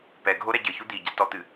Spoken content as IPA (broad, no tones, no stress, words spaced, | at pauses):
pɛɡʱo ɾɛɟɘçu d̪iɟatɔt̪ɨ